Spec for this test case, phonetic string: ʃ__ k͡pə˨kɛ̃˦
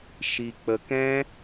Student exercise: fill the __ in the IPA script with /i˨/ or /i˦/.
i˨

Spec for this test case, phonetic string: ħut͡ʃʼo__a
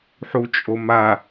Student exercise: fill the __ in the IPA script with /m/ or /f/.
m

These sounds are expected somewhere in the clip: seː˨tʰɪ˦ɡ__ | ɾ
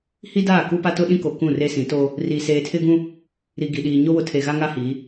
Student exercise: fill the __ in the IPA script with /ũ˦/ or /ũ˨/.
ũ˦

